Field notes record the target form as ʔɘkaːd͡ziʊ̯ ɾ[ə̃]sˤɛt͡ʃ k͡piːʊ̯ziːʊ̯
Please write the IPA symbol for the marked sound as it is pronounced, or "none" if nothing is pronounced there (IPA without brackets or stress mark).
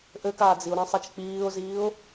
ɐ̃